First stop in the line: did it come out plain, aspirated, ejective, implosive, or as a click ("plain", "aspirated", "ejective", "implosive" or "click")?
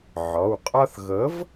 ejective